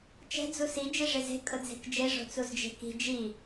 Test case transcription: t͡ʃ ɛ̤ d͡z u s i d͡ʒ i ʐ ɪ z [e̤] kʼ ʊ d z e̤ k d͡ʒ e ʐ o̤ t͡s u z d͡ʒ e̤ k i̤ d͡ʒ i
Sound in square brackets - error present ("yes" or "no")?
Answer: no